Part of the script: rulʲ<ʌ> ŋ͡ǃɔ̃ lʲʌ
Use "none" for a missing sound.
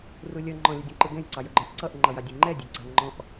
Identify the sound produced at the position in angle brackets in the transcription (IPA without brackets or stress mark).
ʌ